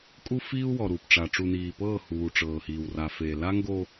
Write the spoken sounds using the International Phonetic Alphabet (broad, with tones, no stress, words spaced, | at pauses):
kʼu˦fiː˦u̯ wɔ˨ɾuː˨pʈ͡ʂa˨ ʈ͡ʂu˨niː˨pɤː˦˨huː˨ ʈ͡ʂɤː˨hiː˨w ra˨feː˨ la˦ŋɡo˦